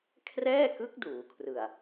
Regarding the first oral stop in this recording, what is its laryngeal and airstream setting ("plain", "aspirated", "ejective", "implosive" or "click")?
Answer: aspirated